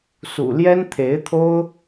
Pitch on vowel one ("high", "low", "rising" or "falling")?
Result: low